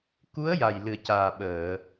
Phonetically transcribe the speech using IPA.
k u˧˥ ə̯ j a˨˩ j l ɨ˨˩ ə̯ c aː˨˩ ɓ əː˨˩˨

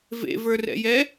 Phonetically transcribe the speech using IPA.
v ḛ v ə˞ r ɛ̰ j ɛ

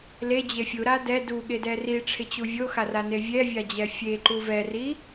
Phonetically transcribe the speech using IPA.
l e d͡ʑ e fʲ u ɾ a d ɛ d u ɠ e d ɛ r i ʈ͡ʂʰ ɪ t͡ɕ u vʲ o x a r a n e vʲ ɛ vʲ a d͡ʑ ɛ fʲ e ǃ u v ɛ r i

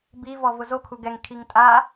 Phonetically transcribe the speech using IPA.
b i v ɔ v ʊ z o kʰ u ɡ ɛ ŋ kʰ i ŋ tʼ a

